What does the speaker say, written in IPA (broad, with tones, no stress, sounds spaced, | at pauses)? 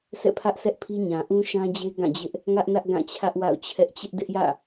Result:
sʰ ɛ̰˦˨ pʰ ä˦ ʔ s ɛ˦ ʔ pʰ i˦ ɲ ã˨ ʔ ũ˦ ʃ ã˦ d͡ʑ e˦ ɡ ã˦˨ d͡ʑ ɪ˦ ʔ | ŋ ä˦ ʔ n ä˦ ʔ ɡ ã˦˨ t͡ɕʰ ä˦ ʔ w a̰˦˨ ʊ̯ t͡ɕʰ ɛ˦ ʔ t͡ɕ ɪ˦ ʔ d ɪ˦ ʔ j ä̰˦˨